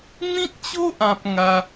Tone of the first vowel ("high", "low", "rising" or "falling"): high